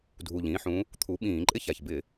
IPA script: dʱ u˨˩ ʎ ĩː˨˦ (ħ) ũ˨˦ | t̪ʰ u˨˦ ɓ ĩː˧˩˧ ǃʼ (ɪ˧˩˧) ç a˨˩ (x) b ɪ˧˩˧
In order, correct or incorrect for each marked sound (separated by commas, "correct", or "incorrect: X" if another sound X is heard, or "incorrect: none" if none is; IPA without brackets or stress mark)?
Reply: correct, incorrect: ɪ˦, incorrect: ç